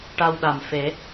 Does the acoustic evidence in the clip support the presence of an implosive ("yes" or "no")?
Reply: yes